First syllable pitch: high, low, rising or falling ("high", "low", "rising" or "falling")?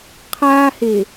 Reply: high